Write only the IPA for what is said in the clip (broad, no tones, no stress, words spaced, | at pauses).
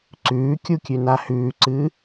ǀʉːkʲukʲʉna hʉːǀɨː